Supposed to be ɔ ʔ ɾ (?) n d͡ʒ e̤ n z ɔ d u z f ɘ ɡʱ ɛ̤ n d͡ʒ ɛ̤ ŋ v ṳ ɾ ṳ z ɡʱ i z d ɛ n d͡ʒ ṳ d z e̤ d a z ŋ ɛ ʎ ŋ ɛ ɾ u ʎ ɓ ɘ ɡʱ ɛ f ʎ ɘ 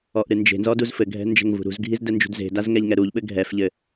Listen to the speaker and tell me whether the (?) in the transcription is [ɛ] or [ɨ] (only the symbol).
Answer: ɨ